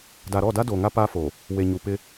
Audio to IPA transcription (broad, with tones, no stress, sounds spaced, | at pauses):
d a˨ ɾ ɔ˦˨ d a˦ d o˨ ŋ a˦ p a˦ f o˨ | w e˨ ɲ u˨ p ɪ˦